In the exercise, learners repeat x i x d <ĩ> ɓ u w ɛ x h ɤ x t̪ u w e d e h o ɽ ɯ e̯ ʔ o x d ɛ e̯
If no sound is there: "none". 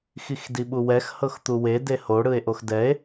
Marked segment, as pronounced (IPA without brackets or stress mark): i